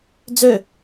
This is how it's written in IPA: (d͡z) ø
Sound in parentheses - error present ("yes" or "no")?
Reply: no